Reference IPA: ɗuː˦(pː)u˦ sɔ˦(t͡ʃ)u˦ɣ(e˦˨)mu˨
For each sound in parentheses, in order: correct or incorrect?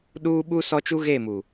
incorrect: ɓ, correct, correct

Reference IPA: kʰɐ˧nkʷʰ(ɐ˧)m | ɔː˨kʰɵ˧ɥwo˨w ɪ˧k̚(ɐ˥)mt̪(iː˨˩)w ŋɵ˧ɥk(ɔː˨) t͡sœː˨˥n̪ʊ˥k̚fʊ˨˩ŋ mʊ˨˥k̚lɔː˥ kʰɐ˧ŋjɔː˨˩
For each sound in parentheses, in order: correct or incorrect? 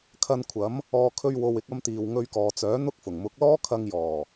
incorrect: ɐ˨˥, incorrect: ɐ˧, incorrect: iː˨, correct

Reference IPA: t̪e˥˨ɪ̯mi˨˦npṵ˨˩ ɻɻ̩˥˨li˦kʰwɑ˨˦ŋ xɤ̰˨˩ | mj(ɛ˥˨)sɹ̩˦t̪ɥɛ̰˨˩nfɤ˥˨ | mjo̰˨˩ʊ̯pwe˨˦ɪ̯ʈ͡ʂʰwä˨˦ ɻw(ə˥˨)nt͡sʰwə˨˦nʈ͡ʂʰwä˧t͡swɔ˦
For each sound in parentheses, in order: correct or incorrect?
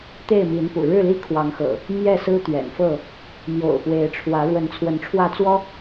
correct, incorrect: ə˨˦

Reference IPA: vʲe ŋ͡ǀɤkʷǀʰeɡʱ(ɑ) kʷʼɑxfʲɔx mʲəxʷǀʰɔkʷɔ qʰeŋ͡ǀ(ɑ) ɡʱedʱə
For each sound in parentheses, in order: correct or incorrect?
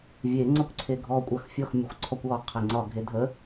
incorrect: ɔ, incorrect: ɒ

